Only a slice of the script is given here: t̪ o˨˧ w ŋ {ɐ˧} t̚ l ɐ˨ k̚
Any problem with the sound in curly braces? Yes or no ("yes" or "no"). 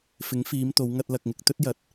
no